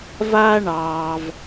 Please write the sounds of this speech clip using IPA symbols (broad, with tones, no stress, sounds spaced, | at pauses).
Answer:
v aː˥ ɳ ɑː˩ v